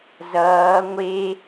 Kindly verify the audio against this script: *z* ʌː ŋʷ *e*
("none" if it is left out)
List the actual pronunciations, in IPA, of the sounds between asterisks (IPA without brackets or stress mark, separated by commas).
z, e